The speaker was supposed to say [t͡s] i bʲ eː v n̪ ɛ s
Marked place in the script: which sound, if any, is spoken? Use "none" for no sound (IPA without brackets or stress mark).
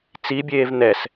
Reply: t͡s